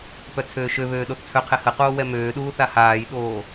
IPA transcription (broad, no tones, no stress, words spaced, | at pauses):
pœt͡sʰøːʃøβøː ɗoθt͡sʰœqʰɛ həqoː wɛmøːɗuː θahaːjɗoː